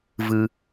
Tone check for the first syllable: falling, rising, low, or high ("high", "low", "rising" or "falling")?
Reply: low